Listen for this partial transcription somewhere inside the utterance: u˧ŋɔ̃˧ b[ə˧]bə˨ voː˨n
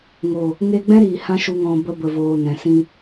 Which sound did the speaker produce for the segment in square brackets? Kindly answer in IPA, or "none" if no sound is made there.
ə˧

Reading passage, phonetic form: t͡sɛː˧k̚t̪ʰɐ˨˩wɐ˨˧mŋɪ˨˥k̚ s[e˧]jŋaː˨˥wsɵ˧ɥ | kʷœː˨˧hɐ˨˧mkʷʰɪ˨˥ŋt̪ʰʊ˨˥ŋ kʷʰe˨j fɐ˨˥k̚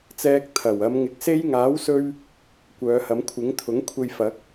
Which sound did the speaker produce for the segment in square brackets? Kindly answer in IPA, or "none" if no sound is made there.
e˧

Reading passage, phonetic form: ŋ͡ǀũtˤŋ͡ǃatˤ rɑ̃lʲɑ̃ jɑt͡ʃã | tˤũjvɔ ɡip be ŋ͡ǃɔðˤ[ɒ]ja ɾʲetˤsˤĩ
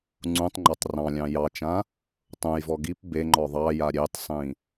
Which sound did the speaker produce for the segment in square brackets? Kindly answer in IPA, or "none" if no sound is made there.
ɑ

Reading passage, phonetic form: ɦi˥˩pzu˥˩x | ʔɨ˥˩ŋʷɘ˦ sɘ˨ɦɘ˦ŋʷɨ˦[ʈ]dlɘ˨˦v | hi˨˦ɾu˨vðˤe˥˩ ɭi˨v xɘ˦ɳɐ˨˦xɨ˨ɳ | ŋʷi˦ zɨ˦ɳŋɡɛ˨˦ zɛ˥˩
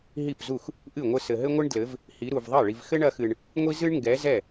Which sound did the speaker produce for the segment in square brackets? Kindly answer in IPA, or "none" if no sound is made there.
ɳ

